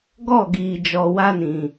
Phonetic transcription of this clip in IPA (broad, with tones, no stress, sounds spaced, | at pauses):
ɡ ɔ˦˨ ɡ iː˨ d͡ʒ ɔ˨ w a˦ n ĩ˨